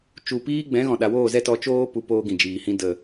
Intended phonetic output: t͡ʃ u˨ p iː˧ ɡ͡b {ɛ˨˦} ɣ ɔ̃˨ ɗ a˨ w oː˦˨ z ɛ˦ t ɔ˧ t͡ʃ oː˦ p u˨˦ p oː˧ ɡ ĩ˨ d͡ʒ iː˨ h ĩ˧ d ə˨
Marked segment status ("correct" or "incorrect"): incorrect